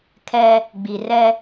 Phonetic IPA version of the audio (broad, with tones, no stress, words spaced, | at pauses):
kʰɛ˦ | ɡ͡bi˨rɛ˦